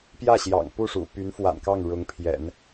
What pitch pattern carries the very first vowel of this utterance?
falling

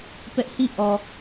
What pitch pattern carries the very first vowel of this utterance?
high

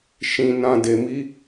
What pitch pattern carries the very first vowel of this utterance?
low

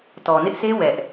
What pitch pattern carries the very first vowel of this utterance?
low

